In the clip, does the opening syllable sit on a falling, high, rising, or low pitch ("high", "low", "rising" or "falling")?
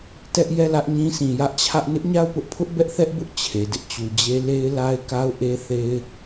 high